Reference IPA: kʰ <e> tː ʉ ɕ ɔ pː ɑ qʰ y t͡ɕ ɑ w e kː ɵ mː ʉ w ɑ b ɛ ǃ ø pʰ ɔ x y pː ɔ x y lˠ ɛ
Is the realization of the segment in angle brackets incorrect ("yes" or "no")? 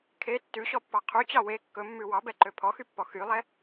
no